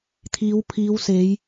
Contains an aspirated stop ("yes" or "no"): yes